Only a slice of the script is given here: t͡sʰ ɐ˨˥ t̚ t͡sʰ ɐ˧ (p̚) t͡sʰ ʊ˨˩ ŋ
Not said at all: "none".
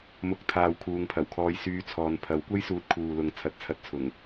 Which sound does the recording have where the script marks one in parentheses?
t̚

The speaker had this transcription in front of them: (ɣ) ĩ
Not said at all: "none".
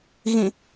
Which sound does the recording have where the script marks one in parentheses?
ɣ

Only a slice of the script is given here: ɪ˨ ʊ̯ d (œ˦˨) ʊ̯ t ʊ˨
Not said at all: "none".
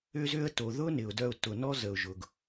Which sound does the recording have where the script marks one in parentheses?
œ˦˨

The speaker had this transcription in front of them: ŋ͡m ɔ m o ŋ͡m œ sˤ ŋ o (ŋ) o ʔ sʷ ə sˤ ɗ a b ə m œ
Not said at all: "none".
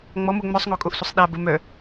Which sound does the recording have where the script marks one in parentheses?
kʼ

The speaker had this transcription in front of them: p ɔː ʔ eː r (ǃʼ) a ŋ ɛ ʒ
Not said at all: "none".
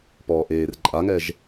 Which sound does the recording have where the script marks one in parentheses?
ǃʼ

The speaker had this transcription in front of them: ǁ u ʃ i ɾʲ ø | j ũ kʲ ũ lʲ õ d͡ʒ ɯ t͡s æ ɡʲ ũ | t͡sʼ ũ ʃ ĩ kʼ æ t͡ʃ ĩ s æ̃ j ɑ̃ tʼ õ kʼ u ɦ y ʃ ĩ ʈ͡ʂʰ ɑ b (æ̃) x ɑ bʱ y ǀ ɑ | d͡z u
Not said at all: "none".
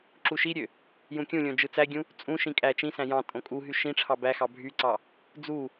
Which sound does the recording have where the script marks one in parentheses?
æ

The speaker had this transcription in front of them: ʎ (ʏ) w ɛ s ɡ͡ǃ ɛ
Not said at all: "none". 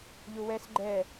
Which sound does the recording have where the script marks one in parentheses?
u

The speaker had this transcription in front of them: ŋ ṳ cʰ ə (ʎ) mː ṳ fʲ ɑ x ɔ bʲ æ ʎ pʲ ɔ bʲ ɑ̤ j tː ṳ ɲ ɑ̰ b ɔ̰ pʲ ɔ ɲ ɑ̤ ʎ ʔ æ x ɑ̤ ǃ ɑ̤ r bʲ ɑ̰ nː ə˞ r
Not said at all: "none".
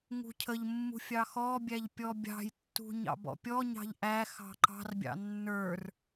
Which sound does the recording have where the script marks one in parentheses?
ʎ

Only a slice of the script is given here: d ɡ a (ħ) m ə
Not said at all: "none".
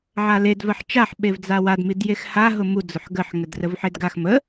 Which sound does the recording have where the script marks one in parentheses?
x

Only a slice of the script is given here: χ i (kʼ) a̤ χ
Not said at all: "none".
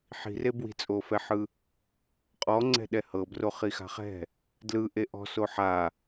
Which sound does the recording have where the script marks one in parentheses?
x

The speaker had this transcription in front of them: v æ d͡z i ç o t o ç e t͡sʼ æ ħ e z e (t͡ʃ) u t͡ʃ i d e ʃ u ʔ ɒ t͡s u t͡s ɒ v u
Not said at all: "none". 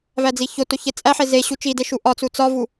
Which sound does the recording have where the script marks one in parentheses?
ɕ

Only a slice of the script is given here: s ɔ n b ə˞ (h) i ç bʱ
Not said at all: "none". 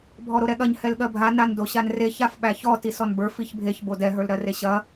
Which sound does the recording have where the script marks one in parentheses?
f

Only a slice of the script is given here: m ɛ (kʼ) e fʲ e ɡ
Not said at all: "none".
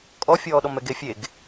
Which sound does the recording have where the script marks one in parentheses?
ɡ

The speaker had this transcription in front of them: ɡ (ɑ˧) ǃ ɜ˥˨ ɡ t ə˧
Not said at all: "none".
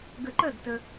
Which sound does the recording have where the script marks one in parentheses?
ə˧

